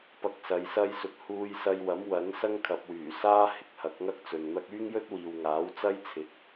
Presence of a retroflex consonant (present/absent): absent